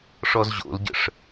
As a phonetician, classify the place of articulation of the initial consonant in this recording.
retroflex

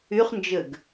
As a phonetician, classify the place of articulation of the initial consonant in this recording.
uvular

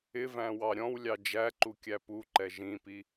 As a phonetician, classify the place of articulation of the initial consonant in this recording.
labial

